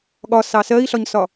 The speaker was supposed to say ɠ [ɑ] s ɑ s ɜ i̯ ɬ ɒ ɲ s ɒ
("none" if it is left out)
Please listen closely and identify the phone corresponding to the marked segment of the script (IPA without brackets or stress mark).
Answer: ɒ